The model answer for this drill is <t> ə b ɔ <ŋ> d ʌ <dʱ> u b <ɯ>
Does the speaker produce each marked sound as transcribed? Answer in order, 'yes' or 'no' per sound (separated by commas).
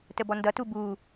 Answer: yes, no, no, no